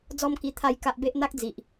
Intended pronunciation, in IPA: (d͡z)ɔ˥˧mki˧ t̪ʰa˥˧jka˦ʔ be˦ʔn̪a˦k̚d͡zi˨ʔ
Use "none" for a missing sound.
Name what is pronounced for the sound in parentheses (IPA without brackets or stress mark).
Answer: d͡z